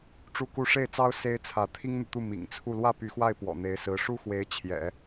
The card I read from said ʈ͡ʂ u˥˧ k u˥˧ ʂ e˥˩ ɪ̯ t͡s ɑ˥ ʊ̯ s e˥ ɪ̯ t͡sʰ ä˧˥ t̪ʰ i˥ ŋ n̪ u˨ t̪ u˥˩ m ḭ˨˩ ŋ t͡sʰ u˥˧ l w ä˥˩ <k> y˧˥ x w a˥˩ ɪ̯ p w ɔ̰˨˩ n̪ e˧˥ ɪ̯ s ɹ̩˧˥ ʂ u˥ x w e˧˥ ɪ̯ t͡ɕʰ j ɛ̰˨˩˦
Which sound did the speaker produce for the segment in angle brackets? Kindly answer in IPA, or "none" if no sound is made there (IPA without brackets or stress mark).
p